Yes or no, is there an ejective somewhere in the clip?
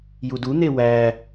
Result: no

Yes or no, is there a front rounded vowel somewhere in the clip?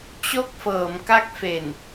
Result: no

